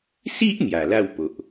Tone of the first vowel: high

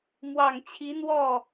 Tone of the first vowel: low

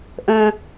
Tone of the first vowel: high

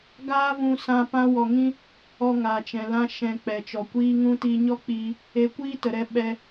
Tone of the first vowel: high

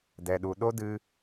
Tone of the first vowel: low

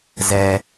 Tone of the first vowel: low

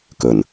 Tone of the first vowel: low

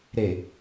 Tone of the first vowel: low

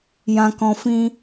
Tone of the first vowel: low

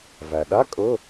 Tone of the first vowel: low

